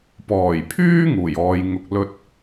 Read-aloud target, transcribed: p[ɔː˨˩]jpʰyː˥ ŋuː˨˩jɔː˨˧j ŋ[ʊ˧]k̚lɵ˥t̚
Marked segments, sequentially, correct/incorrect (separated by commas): correct, correct